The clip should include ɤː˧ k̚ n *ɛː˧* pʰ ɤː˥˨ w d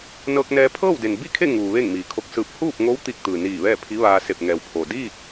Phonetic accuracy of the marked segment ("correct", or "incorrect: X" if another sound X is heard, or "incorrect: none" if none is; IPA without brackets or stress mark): correct